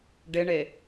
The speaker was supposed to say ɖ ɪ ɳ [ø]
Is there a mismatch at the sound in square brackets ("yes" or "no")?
yes